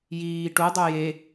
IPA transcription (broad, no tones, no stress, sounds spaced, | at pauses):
j iː ʈ u dˤ u j e